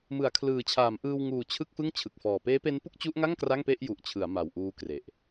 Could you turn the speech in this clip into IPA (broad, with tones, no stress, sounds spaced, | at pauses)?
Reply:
m ɯ˩˦ a̯ kʰ l ɯː˨˩ t͡ɕʰ aː˩˦ m ʔ ɯː˧ w ŋ uː˨˩ t͡ɕʰ ɯ˥˩ k̚ f ɯ˥˩ ŋ t͡ɕʰ ɯ˨˩ k̚ f ɔː˨˩ p eː˦˥ p e˦˥ n p u˥˩ k̚ t͡ɕ u˦˥ ʔ ŋ a˥˩ ŋ k r a˥˩ ŋ p e˥˩ ʔ j u˨˩ ʔ t͡ɕʰ ɯ˩˦ a̯ m a˨˩ w ʔ uː˦˥ k r e˨˩ ʔ